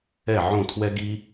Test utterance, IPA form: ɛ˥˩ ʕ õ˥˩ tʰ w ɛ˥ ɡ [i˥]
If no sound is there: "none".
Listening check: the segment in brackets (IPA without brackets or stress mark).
i˥